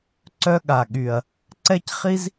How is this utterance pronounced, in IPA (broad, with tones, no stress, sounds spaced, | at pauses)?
ǀ œ˦ ɠ a˨ ɠ y˨ ɐ̯ | ǀ ɛ˦ c χ i˦ z